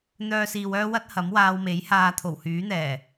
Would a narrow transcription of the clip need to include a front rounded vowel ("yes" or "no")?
yes